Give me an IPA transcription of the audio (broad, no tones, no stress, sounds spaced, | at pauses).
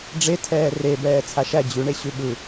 ɖ͡ʐ e tʰ ɛː r e b ɛː t͡sʰ a ʃ æ d͡ʑ ʉ ɳ e ɕ ʉ ɓ ɯ